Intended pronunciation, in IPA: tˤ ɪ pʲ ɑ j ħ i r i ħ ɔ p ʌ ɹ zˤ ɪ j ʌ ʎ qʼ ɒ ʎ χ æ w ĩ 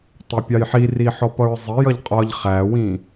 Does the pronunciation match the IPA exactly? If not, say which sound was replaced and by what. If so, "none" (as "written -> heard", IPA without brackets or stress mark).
none